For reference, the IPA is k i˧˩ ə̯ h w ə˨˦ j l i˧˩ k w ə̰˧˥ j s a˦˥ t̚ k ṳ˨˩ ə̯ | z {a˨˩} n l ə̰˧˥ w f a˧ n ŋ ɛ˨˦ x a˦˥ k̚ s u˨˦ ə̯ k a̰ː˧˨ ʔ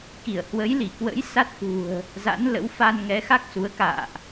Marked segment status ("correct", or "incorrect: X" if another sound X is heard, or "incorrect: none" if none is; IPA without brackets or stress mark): incorrect: a̰˧˥